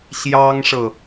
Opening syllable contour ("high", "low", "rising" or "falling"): high